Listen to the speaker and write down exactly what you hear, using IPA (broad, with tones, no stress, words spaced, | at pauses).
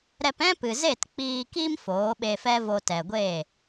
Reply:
ɾɛ˧pɛ̃˦pɨ˨ze˦˨t k͡piː˧ki˦m foː˨˦ɓe˧fɛ˦vo˧ tɛ˨ɡʷeː˦˨